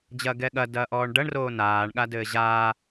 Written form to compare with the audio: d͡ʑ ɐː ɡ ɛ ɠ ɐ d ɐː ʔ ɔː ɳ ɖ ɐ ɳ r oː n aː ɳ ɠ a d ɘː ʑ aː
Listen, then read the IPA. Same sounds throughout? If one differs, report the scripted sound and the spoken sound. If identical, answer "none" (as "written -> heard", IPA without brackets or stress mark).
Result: none